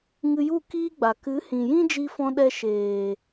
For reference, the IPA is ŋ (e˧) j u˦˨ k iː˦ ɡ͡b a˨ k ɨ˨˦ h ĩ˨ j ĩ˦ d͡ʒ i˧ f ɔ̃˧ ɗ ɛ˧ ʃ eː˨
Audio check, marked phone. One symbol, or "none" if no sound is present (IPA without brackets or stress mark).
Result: ɨ˧